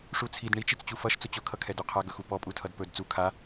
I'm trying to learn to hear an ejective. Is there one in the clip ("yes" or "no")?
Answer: yes